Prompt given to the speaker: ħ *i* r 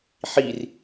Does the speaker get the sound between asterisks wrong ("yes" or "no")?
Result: no